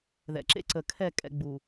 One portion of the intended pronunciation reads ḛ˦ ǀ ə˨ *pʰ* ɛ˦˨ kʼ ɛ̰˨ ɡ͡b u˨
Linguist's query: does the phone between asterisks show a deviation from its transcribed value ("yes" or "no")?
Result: yes